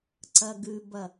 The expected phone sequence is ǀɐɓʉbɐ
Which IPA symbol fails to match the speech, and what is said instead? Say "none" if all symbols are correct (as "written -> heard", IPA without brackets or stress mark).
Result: ɓ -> ɡ